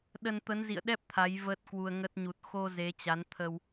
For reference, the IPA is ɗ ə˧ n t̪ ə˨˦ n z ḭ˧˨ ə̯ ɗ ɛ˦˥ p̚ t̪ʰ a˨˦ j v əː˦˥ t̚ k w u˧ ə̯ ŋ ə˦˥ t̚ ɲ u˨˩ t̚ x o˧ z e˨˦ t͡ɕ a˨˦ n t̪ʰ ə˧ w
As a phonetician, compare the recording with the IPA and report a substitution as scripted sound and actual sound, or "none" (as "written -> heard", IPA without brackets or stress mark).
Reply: none